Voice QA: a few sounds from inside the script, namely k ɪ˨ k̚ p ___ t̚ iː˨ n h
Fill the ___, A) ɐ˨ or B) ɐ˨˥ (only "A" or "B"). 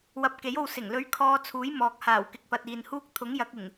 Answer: A